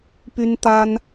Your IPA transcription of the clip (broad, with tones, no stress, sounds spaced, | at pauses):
p y˥ n t̪ a˥ n